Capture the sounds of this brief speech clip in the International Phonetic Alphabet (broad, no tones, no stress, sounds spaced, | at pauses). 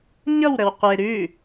ɲ ʌ w ɾ ə w qʷ e ɾ ʉ